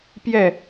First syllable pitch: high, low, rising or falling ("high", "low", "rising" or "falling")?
falling